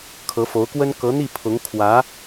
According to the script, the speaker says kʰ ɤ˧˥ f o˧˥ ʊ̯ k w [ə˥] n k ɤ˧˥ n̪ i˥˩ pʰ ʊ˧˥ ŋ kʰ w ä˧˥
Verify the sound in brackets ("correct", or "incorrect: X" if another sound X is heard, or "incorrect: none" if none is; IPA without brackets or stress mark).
correct